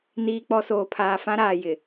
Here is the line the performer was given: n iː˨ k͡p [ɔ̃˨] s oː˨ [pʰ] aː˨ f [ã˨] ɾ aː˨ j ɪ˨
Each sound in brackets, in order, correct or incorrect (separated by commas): incorrect, correct, incorrect